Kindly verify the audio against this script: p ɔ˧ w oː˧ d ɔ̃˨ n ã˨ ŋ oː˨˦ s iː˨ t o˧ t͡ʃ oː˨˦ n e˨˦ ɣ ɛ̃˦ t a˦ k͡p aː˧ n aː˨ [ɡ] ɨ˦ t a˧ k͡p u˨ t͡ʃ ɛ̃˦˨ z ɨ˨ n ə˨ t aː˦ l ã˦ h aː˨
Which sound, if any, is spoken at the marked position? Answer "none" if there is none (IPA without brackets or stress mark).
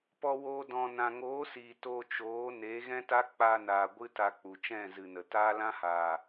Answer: ɡʷ